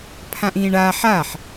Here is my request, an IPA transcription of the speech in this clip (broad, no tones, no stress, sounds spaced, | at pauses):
pʰ ã ʔ ĩː ɳ a ħ a ħ